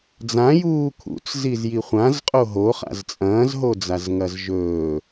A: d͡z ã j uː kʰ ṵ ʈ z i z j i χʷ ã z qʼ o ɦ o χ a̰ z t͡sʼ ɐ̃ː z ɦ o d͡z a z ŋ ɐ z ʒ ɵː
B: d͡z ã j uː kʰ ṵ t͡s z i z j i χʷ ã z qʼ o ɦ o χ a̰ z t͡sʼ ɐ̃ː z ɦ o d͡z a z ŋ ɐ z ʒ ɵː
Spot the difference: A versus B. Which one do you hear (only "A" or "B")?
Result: B